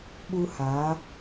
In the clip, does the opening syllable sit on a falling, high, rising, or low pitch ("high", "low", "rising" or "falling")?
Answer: high